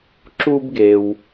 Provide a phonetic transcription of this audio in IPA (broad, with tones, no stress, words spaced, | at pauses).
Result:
ǁu˥bɡe˩w